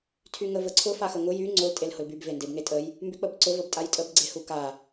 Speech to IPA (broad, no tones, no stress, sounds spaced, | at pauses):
tʰ y ŋ ə v ə ǀʰ ʊ f a x ə ŋ ʊ j y ŋ͡ǀ ʊ l tʼ e l h ʊ l b y b v e n d e b ŋ e tʼ ə j | m b y k͡p ə b ǀ ʊ v ə b tʼ a j tʼ ə b ɡ͡ǀ e h u k a